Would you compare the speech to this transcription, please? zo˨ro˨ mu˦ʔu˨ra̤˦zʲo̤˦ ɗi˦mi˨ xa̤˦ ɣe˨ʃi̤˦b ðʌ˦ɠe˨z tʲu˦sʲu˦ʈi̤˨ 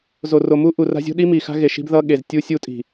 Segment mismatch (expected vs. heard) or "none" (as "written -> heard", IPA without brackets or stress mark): ʈ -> tʼ